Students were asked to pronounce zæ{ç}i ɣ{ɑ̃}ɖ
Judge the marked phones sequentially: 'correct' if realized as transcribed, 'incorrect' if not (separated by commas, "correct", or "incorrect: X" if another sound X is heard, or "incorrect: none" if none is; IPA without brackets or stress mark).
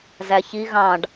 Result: correct, correct